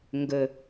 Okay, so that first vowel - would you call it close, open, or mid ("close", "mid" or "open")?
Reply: mid